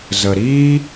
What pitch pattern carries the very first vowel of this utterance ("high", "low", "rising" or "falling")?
low